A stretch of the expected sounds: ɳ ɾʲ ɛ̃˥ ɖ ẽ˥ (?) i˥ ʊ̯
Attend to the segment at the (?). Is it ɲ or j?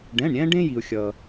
j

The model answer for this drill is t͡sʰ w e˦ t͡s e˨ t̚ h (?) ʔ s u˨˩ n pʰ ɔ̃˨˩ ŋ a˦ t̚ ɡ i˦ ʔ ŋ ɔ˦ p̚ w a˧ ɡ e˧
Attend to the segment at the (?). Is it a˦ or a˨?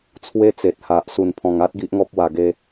a˨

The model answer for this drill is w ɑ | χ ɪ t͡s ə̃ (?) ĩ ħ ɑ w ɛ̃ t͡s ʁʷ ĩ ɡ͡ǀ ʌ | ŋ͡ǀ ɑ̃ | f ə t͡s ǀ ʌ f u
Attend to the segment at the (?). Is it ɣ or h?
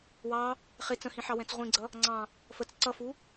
h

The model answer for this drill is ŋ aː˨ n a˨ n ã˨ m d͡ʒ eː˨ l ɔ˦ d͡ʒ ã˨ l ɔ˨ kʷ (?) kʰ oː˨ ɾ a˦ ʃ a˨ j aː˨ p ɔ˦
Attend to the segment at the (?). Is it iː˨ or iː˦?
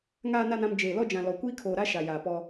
iː˦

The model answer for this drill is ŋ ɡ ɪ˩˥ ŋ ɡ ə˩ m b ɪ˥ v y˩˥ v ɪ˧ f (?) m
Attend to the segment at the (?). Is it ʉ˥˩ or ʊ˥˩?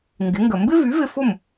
ʊ˥˩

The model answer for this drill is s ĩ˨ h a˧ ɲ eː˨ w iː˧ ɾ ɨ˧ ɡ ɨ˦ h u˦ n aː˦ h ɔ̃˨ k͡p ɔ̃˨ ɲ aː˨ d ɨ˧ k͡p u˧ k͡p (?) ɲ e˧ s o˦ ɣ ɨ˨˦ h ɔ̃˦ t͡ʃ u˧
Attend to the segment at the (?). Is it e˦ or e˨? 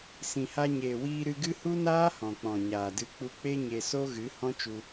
e˦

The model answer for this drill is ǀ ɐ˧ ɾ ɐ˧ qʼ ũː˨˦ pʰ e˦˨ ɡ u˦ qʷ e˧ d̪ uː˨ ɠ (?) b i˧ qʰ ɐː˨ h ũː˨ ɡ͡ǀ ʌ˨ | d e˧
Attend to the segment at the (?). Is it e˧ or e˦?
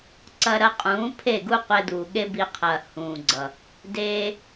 e˦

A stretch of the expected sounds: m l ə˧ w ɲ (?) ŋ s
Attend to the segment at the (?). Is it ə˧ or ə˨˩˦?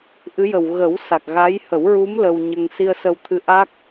ə˧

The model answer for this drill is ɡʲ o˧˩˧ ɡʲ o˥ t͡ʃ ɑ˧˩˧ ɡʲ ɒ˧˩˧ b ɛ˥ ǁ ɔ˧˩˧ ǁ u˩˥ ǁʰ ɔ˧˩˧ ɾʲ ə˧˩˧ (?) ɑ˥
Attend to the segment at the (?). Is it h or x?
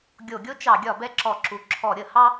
h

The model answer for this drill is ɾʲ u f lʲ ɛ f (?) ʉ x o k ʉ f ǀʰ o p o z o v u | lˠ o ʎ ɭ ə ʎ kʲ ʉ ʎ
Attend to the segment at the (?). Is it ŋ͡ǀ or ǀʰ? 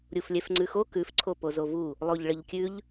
ŋ͡ǀ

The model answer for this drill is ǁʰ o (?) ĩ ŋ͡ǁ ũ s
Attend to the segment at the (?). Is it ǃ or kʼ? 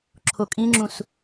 kʼ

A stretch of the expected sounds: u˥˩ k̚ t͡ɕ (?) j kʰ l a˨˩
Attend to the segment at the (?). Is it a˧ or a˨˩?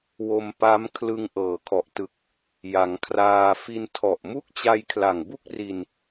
a˧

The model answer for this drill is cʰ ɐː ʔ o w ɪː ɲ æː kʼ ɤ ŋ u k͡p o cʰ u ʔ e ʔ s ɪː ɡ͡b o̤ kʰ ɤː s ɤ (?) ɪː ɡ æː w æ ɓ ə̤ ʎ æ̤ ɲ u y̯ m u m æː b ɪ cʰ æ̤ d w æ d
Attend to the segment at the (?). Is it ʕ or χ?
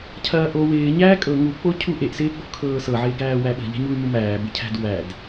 ʕ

